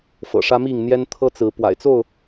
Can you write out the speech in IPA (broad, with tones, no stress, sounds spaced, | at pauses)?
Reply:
f ɤ̰˨˩ ʂ ä˦ m i˥˨ ŋ n̪ j ɛ˦ n t̪ʰ ɤ˦ t͡s ɹ̩˨˦ p w a̰˨˩ ɪ̯ t͡s o˥˨ ʊ̯